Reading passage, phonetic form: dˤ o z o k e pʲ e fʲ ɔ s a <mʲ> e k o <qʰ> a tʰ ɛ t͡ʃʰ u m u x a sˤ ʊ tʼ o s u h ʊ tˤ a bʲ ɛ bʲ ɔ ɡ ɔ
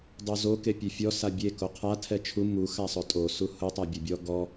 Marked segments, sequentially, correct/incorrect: incorrect, correct

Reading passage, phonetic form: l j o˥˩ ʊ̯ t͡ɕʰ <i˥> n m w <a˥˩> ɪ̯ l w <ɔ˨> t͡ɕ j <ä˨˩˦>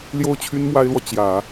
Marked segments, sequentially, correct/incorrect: incorrect, incorrect, correct, correct

